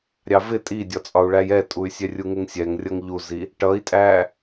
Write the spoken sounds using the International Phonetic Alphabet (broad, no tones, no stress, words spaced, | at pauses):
ɾʲɑvɪ tʼidʲɒt͡sʼɒu̯ɭæj ɛtʼuy̯sʲɛ rʲuŋɪŋsʲɛŋ rʲʌŋʎuzi | ʈʌi̯tʼæ